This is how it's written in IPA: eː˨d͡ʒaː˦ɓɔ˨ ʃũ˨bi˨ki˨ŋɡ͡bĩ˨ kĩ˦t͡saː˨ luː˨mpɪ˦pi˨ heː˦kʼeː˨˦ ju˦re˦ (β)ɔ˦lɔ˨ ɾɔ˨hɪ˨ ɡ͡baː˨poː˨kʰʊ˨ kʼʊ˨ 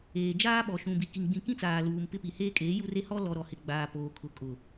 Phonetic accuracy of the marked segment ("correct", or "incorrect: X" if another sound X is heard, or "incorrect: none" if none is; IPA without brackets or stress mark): incorrect: h